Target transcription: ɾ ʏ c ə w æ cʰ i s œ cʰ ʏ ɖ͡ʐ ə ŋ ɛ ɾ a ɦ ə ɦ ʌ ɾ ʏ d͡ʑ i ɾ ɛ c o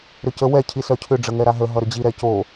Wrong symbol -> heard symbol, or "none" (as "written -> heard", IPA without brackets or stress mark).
æ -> ɛ